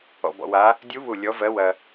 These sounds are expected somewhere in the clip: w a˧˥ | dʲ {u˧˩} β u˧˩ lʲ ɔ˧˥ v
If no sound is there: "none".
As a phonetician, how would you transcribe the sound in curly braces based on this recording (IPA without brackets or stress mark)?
u˧˥